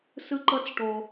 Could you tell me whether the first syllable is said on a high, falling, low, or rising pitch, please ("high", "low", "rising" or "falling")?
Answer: high